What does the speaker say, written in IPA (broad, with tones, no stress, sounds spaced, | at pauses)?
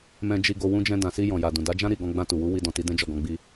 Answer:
m ɛ̃˧ d͡ʒ i˧ ɡ o˧ w ũ˧ d͡ʒ ɛ̃˧ d ã˨ s i˧ j ɔ̃˨ j a˨ d ũ˨ d a˨˦ d͡ʒ ã˦ ɾ i˦˨ ɡ ɔ̃˧ ɡ͡b ã˧ t u˨ w u˨˦ w i˦ d ɔ̃˧ t i˦ d ɛ̃˦ d͡ʒ ɔ˦˨ ɡ ɔ̃˧ ɡ͡b i˧